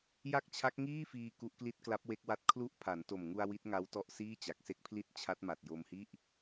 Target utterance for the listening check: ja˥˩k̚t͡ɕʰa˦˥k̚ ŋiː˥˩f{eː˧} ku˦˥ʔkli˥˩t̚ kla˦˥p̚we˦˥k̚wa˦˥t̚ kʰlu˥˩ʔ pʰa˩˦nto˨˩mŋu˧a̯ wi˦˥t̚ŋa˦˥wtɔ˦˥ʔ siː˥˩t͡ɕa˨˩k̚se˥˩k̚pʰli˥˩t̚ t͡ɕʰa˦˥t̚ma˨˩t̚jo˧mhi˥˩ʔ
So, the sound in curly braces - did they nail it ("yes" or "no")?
no